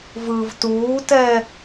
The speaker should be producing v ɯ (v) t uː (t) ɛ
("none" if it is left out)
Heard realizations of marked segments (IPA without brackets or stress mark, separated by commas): v, t